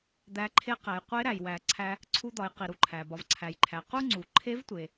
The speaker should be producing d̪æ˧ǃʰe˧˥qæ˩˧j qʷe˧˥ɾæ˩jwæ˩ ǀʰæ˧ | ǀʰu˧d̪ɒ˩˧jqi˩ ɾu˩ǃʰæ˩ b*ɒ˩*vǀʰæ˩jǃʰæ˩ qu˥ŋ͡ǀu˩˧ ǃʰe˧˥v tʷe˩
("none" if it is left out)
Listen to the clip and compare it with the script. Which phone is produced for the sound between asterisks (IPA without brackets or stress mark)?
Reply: ɒ˩